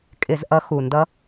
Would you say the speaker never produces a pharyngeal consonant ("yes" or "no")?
yes